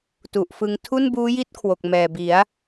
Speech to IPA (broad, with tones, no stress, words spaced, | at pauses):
tu˨˩ʔfɯ˧ŋ tʰu˥˩nbuː˦˥ji˥˩t̚ kʰwo˨˩k̚mɛː˨˩bi˩˦a̯